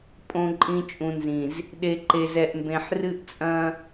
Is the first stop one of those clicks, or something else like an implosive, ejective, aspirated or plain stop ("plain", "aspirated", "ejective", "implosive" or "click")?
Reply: ejective